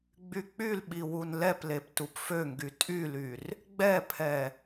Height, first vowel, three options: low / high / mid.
high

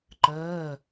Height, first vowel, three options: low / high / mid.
mid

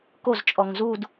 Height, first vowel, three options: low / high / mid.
mid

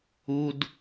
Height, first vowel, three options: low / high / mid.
high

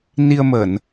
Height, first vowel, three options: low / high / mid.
high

